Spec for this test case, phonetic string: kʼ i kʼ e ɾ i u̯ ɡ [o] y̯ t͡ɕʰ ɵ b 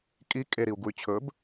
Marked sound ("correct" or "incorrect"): incorrect